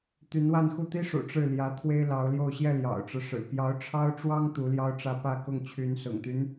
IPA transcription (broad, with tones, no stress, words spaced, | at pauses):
t̪y˧˥nwa˥˧nxu˥˩ t̪i˥ʂṵ˨˩ ʈ͡ʂɻ̩˥˩ ljä˧˥ t̪ʰwe˥ɪ̯lɑ˧˥ʊ̯ljo˥˧ʊ̯ ɕjɛ˥˩ljɑ̰˨˩ʊ̯ʈ͡ʂɻ̩˦ʂɻ̩˨˩ pjɑ˧˥ʊ̯ʈ͡ʂʰɑ˥ʊ̯ʈ͡ʂwɑ˥ŋ t̪u˧˥ljɑ˥ʊ̯ʈ͡ʂä˥˧ pä˥˧kʊ˥˩ŋ t͡ɕʰy˧˥nsʊ̰˨˩ŋt̪y˦n